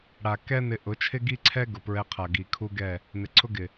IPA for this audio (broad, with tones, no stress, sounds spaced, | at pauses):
ɽ a˨ k ɛ˦ n ɪ˧ ʔ ʊ˨˦ t͡ʃʰ ɪ˦ ɡ i˦ ǀʰ ɛ˦ ɡ ʊ˨ p ɹ ɛ˧ qʰ a˨ ɡ i˨ kʰ u˦ ɡ ɛ˦˨ | n ɪ˨ ǀʰ ʊ˦ ɡ ɪ˨